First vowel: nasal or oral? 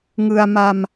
oral